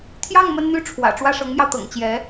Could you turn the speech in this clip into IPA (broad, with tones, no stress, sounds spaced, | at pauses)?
t̪ʰ j ɑ˥˩ ŋ m ə˥ n n̪ y˥˩ ʈ͡ʂʰ w ä̰˨˩ ʈ͡ʂ w ä˥˩ ʂ ɤ˧˥ ŋ m j ɑ˧ ʊ̯ t̪ ɤ̰˨˩ ŋ t͡ɕ j ɛ˧˥